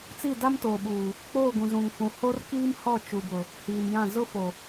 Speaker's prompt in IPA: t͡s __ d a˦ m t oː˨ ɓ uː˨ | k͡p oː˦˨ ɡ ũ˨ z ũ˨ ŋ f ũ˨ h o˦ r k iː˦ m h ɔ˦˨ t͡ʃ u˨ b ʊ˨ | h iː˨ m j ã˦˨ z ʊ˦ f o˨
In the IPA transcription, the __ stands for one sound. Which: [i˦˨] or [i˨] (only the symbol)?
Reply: i˦˨